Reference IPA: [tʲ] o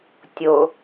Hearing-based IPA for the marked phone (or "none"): tʲ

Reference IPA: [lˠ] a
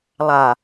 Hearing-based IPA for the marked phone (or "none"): lˠ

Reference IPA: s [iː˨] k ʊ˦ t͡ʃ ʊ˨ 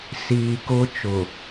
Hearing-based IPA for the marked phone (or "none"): iː˨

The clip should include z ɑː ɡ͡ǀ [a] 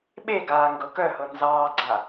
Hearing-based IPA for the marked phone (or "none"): a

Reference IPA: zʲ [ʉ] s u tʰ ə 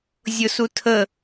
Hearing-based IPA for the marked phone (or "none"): ʊ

